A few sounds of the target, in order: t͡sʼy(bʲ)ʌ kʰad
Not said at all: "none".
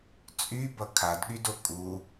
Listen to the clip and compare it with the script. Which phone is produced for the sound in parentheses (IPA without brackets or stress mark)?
b